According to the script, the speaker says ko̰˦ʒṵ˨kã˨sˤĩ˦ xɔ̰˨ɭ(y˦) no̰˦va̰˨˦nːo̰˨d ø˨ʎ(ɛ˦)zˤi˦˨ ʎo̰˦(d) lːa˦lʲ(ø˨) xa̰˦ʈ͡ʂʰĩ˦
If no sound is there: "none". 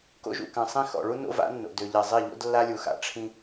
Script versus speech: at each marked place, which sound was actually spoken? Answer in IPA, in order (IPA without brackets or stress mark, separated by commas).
u˦, ɛ˨, d, u˨